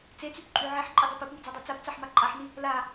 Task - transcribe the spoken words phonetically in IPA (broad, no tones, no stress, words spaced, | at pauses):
t͡set͡sypǃʼy ʕeħǃʼidˤep epŋid͡zadˤa t͡sapt͡saħma ǃʼaħni | la